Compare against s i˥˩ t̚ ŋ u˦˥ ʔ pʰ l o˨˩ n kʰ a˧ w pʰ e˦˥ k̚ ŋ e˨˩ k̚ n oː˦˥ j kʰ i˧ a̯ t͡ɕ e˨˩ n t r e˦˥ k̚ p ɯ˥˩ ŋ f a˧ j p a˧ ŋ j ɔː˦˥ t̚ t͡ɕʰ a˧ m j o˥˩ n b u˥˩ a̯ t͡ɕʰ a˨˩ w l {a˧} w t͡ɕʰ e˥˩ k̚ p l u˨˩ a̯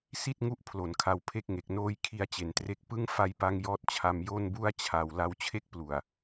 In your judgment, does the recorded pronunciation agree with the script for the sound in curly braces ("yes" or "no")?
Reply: yes